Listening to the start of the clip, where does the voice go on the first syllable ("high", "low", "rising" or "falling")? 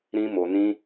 high